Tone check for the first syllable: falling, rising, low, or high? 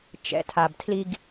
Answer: low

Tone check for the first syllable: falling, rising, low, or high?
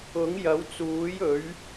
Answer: rising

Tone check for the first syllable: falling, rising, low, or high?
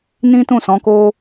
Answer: high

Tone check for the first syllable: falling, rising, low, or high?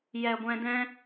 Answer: low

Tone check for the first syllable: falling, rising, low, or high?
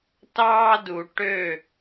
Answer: high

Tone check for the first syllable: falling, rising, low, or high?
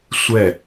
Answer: falling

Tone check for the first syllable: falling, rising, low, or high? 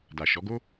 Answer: low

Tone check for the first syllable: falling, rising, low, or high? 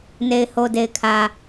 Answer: low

